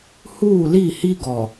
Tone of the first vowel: falling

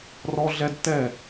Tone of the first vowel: high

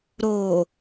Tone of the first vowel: low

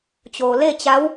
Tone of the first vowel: low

